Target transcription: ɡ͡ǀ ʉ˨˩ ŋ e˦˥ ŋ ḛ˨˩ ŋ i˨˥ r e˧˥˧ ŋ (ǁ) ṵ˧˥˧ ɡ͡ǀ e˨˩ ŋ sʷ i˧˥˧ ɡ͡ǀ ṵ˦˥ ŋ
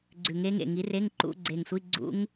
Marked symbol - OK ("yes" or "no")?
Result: no